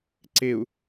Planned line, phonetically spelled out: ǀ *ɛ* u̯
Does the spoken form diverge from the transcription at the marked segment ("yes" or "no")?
yes